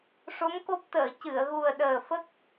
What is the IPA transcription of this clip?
ʂ o˧˥ m k o˦˥ p̚ t̪ əː˨˩˨ c ɨ˨˩˨ ə̯ ɣ u˨˩ ə̯ ɗ əː˨˩ f ə˦˥ k̚

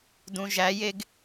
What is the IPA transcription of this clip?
d ũ ʒ æ j e ɡ

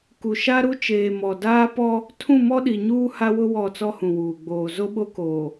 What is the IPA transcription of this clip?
k u˨ ʃ a˦ ɾ u˦ t͡ʃ eː˨ m ɔ˨ d aː˦ p ɔ˦ | tʰ ũ˦˨ m ɔ˦ ɗ i˨ ɲ uː˦ h a˦ w ʊ˦ w ɔ˦˨ t͡s ɔ˦ h ũ˨ w uː˨ ɡ͡b oː˨ z o˦ ɓ o˦ k oː˨

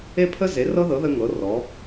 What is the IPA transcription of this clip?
e˥ pʰ ə˥ z e˨˥ r ɤ˥ ð ɤ˨˥ ð ə˥ ŋ ɤ˨˥ r ɔ˨˥

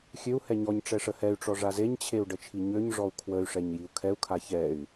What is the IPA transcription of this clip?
xʲ ø u̯ h ɛ ɲ ɔ ɲ ʈ͡ʂ ɛ ʂ ə h ɛ y̯ ʈ͡ʂ ɔ ʐ a z e ɲ t͡ɕʰ e u̯ ɖ ə t͡ʃʰ i ɲ ø ɲ ʐ ɔ u̯ kʰ w ə y̯ ʂ ɛ ɲ j i u̯ kʰ ɛ u̯ kʰ a ç ɛ y̯

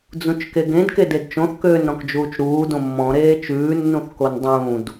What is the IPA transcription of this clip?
d͡z ũ t͡ʃ k e ɡ ẽ d k e d e d t͡ʃ õ θ k øː n ɾ ɔ̃ k d͡ʒ uː t͡ʃ ɾ uː d õ mː ɔ̃ ɾ eː t͡ʃ ʉː nː ũ θ k o n dˤ ũː d

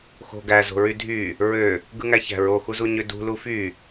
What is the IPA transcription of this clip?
x o̤ ɡ æ z o̤ ɹ y dʱ y | ɹ ø | ɡ ɯ ŋ æ ç æ̤ ɹ o x u z u ɲ ø d ṳ l u f y

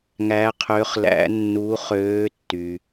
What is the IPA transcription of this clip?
ŋ æ˨˥ qʰ ø˨˥ χ l æ̰˨˥ nː u˨˥ χ øː˨˥ tː y˩

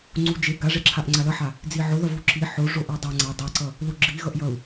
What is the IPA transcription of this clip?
ŋ͡ǀ u d͡ʒ e ɡ a ʐ e ǁʰ a ʔ ŋ͡ǀ a l ʌ ħ a | d͡z i ʕ o ð ʌ v u ǁ i ħ o ʐ o ʔ a dˤ a ŋ͡ǀ a dˤ e ǀ ʌ | l u ɡ͡ǁ i ɣ ʌ ʔ j ʌ u̯

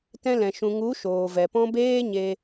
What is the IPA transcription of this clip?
t ɛ̃˧ l ɛ̃˨ ʃ ũ˨ ŋ u˨˦ ʃ oː˨ v ɛ˨ p ɔ̃˦ b eː˦ ɲ e˧

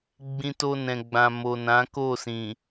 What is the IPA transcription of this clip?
ɡ͡b ĩ˧ t o˧ n ɛ̃˨ ɡ͡b ã˨ m o˨ n ã˨˦ k o˦˨ s ĩ˨

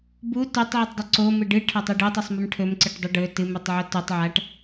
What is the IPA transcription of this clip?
b u t ɵ tˤ ʕ i tˤ dˤ ɵ ǀ o m ɨ ɖ ɨ ʈʰ ɐ tˤ ʉ ɖ ɨ tˤ u sˤ m ɨ m ʈʰ ɵ m ǀ ɨ ʈ dˤ ɨ ɖ ɵ t ɨ m ʉ tˤ ʕ o t u tˤ ʕ a ʈ

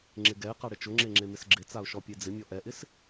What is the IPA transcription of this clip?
ŋ͡ǁ ɪ ɡ ɛ ɪ̯ q a ɽ ɪ t͡ʃ ʊ ŋ͡ǁ e ŋ͡ǁ e m ɪ s ɡ͡ǁ ɪ t͡s a ʊ̯ ʃ ɔ pʲ e d͡z ɪ mʲ ɔ ʔ ɛ ʔ ɪ s

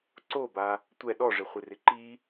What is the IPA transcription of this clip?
ǀ o b a | tʷ ɛ ɗ ɔ ʐ ɪ χʷ ɪ r ɪ ǃ i

